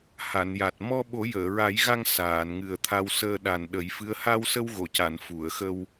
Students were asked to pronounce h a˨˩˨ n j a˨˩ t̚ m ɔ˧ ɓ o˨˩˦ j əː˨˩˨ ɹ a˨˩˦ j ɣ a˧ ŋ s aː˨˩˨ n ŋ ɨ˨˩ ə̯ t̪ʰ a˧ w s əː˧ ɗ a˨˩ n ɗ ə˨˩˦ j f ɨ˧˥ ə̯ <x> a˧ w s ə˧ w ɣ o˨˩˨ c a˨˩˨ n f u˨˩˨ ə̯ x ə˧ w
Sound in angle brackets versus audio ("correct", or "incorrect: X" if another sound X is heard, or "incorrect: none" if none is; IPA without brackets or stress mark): incorrect: h